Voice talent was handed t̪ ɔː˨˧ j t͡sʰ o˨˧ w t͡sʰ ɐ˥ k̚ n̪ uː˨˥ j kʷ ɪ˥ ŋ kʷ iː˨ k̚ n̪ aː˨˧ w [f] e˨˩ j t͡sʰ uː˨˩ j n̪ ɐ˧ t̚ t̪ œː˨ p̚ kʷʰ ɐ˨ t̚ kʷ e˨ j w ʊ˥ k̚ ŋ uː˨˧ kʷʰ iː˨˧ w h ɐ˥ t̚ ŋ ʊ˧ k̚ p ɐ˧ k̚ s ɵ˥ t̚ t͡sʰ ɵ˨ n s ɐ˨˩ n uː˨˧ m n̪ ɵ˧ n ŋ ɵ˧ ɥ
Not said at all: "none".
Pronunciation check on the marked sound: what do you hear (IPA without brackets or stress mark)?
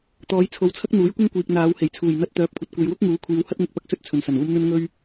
h